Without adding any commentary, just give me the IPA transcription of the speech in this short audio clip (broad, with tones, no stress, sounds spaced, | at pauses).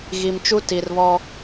ɣ i˨ m t͡ʃ u˦ t i˨ r β ɔ˦